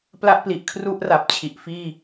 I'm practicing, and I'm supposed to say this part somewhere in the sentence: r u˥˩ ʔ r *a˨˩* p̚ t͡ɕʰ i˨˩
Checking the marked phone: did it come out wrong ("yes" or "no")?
no